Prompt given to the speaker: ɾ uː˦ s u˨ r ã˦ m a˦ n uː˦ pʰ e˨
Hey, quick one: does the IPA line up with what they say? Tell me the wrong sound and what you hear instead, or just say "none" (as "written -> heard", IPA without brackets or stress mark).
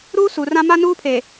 none